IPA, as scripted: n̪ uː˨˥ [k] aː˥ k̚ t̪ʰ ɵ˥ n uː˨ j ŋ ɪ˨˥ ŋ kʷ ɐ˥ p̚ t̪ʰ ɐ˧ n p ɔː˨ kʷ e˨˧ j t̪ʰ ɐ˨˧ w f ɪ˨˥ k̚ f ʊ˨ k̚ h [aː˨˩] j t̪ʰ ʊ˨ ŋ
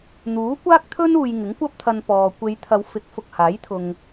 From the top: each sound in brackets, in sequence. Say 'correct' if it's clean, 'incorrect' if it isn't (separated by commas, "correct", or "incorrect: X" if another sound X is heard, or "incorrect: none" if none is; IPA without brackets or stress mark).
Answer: incorrect: kʷ, incorrect: aː˨˥